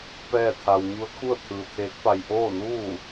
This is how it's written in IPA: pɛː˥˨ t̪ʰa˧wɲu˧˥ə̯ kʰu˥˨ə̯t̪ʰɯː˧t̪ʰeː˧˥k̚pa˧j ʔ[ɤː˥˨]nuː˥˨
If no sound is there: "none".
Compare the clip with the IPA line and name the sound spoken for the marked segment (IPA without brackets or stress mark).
oː˥˨